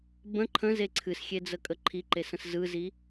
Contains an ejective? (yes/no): yes